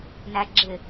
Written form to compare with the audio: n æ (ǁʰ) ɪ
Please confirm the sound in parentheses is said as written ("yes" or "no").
no